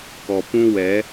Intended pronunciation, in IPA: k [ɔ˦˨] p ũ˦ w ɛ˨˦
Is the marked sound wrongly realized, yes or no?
yes